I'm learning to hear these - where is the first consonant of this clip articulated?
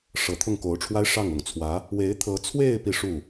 retroflex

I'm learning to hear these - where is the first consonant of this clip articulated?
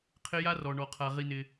uvula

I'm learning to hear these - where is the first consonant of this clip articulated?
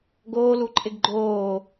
velum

